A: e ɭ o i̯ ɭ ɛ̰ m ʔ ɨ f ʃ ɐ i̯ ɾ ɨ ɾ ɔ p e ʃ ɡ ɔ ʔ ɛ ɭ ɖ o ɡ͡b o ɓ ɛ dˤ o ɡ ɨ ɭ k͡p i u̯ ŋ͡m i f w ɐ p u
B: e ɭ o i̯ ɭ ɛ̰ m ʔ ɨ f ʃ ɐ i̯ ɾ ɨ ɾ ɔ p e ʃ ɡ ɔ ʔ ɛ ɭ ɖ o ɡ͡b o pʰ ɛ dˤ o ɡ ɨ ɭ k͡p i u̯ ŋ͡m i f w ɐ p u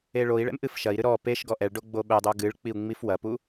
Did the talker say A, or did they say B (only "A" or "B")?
A